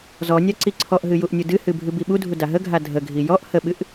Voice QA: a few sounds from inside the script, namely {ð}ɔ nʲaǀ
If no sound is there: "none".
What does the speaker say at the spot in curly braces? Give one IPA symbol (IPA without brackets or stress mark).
z